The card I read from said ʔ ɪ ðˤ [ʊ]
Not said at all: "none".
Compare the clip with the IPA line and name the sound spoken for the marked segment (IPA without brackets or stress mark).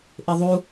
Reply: u